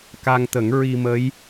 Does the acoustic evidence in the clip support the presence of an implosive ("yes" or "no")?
no